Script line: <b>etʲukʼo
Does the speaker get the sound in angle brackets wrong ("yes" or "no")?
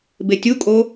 no